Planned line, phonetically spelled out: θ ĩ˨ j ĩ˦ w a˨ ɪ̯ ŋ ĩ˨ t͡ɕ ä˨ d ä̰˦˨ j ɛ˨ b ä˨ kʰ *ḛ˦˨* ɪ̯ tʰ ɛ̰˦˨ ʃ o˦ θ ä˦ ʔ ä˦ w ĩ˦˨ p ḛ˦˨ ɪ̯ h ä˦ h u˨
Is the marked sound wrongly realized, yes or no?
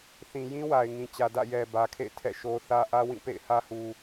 no